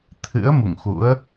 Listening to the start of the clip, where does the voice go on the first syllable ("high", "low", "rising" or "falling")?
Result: rising